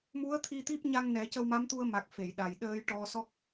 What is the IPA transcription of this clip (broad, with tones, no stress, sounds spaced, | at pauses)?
m u˧˥ ə̯ t̪ʰ i˧ t̪ i˦˥ p̚ ɲ a˧ ŋ n ɛ˨˩˦ c ə˧ w m a˧˥ m t̪ u˧ ə̯ m a˨˩ k̚ f e˨˩˨ j ɗ a˨˩ j ɗ əː˧ j ʈ ɔ˧ s ɔ˦˥ k̚